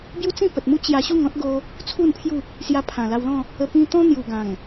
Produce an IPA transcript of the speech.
b j u˦ t͡s ĩ˥˧ p ə˨ t̚ m u˦ t͡ɕ j a˧ ɕ u˥˧ ŋ ɔ̃˦ t̚ ɡ o˧ | t͡sʰ u˥˧ n pʰ j u˥˧ | s j a˧ pʰ ã˨˩ l a˧ w l ɔ̃˥˧ | ə˧ p ĩ˧ t̪ ɔ̃˦ n̪ j u˨˩ ɡ ã˨˩ ŋ

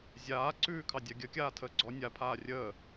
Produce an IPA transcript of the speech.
zʲ aː ǀ ʉː kʰ ɑ dʲ a ɡʲ ə kʲ aː tʰ əː ɡ͡ǀ ɔ nʲ a pʰ aː rʲ əː

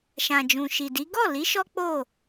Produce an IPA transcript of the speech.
ʃ ã˨ d͡ʒ ũ˨ ʃ i˨ d i˨˦ ɡ ɔ˦˨ l i˨˦ ʃ ɔ˦ k͡p o˦˨

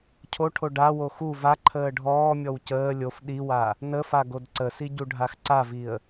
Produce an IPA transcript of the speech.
cʰ o ʈʰ o ɖ a w o x u v a ǃʰ əː ɖʱ ɔː mʲ ɔ w c əː lʲ o f ɗ i w a | n ə f a ɡ o d ǀ ə s i ɟ u ɖʱ a x ǀ a v i ə̯

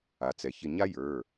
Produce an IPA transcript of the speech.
a˩ t͡s ɛ˩ ç ɪ˧˩ ɲ a˥ j ə˞˩˧˩

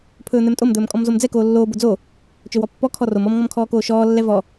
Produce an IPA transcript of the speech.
pʰ ɵː n̪ ɛ m tʼ o m d̪ ɵː m kʼ ɔ m z o m d͡z ɛ k oː lː oː b o d͡z o | t͡ʃ ɵ w ɔ pː ɔ kʰ ɔ r o m ɔ m ŋ ɔ m kʰ ɔː k oː ʃ ɔː lː ɛ v ɔ

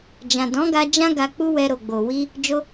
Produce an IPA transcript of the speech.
d͡ʒ ã˨ d ɔ̃˨˦ ɡ a˧ d͡ʒ ã˦ ɡ a˧ k͡p u˦ w ɛ˧ ɾ o˨ ɡ͡b o˨ w i˧ | d͡ʒ o˧

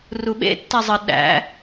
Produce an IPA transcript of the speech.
r u ɓ ḛ tː æ zˤ ə ɗ æ̰

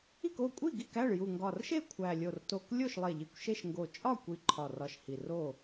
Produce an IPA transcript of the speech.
i˥˨ k o˥˨ kʷʼ i˥˨ ɡ i˥˨ k æ˥˨ ɭ j u˨˩ ŋ ɡ ɒ˨˩ r ʃ e˥˨ kʷʰ æ˨˩ lʲ o˨˩ r t o˨˩ k lʲ o˥˨ ʃ lˠ e˨˩ ʎ i˨˩ kʷ ʃ e˥˨ ʃ ŋ ɡ o˨˩ t͡ʃʼ ɒ˥˨ kʷ i˨˩ ǃʰ ɒ˨˩ r ɒ˨˩ ʃ h i˨˩ r o˥˨

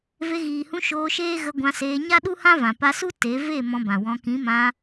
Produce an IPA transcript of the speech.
v e˧ ɣ iː˨ h ũ˧ ʃ oː˧ ʃ eː˦ ɣ ə˧ ɡʷ ã˧ s eː˧ ɲ a˦ ɗ u˦ h ã˦ v ã˨ p a˧ s u˦ t e˨˦ v e˦˨ m ɔ̃˧ b ã˨ w ɔ̃˧ k ĩ˨˦ m ã˧

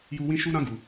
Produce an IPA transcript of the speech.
j u˦ w ĩ˦ ʃ u˦ ɾ ã˦ ɡ u˧

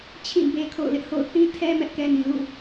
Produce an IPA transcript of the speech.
t͡ɕʰ ĩ˦˨ b e˦ kʰ o̰˦˨ ʊ̯ l ɪ˦ ʔ h o̰˦˨ ʊ̯ θ ĩ˦ tʰ ɛ˦ m ɛ˦ ʔ k ɛ˦ n ĩ˨ l ṵ˦˨

